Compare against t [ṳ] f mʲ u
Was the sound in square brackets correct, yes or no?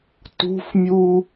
yes